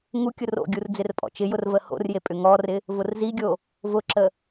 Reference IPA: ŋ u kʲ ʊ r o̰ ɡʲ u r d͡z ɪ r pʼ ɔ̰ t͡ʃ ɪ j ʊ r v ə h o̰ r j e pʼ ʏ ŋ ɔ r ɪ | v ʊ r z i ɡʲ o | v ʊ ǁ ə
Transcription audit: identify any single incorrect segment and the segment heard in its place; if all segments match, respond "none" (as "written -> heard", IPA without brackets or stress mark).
none